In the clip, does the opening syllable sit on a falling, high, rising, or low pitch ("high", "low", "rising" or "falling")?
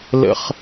high